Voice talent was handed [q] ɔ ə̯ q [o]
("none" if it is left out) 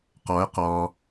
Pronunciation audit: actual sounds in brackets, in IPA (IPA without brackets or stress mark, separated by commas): q, ɔ